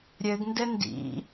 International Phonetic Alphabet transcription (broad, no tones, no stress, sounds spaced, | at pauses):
ɾʲ ɘ ɡ n d ɘ n d ḭ